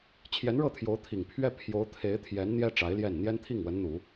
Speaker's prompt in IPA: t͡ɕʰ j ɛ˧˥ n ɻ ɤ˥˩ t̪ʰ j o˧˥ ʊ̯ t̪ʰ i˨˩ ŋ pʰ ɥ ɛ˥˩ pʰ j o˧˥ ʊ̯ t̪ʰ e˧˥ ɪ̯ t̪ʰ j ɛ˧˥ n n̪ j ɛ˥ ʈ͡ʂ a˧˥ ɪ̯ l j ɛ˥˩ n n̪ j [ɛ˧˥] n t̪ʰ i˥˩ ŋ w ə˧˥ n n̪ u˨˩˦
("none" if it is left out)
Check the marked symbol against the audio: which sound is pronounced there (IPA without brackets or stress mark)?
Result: ɛ˥